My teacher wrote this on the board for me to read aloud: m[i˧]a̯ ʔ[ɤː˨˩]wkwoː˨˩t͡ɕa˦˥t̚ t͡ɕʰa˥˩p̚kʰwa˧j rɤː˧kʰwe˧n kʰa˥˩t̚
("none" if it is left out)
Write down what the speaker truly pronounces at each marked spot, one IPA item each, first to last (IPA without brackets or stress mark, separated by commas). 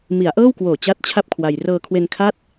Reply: i˩˦, ɤː˥˩